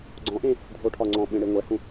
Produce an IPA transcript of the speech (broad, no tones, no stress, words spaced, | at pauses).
ɡ͡ǀɔ̃ʔẽ | dʱoʈʰɒŋ͡ǀɔ̃ɓẽ ɽeŋʷɛhũ